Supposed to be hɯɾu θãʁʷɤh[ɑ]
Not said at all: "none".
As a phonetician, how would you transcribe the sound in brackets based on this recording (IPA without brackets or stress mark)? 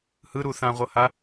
a